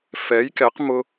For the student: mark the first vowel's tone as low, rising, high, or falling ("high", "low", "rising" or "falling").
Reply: rising